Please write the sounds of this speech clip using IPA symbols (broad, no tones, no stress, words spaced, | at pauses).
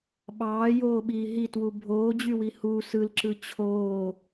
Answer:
ɓɑːjoːɓiː ɦitwu bʱoːd͡ʑywi hu sɯlǁɯ t͡ɕʰoː